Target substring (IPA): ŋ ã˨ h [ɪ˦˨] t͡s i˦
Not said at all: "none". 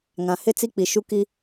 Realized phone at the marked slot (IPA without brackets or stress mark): ɪ˦˨